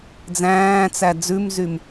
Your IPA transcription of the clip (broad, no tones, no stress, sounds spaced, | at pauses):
d͡z æ̃ː t͡s æ d͡z ʉ m z y m